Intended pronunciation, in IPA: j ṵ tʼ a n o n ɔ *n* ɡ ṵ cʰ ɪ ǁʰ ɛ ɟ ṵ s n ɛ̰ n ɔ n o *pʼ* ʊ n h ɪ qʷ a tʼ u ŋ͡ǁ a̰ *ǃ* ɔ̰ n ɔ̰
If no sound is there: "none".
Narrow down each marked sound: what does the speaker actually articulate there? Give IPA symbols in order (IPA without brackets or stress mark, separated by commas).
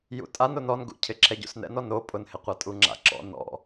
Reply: n, pʼ, ǁ